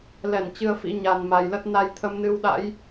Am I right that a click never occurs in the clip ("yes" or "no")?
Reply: yes